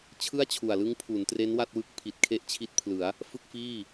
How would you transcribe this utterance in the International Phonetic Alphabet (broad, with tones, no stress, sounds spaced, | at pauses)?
t͡ɕʰ ɯ˥˩ a̯ t͡ɕʰ u˨˩ a̯ l ɯ˦˥ ŋ pʰ u˩˦ n t r e˦˥ n w a˥˩ t̚ w ɯ˦˥ k̚ pʰ i˨˩ t̚ kʰ e˥˩ ʔ t͡ɕʰ i˦˥ t̚ pʰ l ɯ˩˦ a̯ | f ɯ˥˩ k̚ f iː˥˩